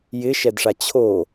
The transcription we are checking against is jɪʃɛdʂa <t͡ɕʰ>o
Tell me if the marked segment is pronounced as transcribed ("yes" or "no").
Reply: yes